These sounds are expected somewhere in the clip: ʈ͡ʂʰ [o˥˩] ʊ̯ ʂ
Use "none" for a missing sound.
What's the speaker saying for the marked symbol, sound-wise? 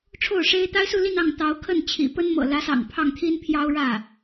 o˥˩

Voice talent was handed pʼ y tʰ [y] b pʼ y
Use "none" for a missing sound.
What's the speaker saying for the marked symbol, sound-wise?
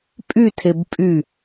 e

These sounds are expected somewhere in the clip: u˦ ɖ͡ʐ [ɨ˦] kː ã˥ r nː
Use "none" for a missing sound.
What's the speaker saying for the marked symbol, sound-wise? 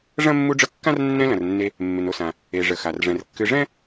ə˦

